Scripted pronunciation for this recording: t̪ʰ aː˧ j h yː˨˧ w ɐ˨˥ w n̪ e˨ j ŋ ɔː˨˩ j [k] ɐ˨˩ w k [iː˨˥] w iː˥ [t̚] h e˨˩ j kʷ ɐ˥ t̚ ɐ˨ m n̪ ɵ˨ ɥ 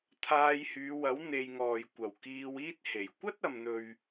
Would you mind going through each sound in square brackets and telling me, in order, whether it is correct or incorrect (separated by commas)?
incorrect, incorrect, correct